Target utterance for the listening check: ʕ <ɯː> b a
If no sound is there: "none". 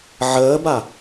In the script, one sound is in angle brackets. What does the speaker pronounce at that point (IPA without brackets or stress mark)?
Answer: əː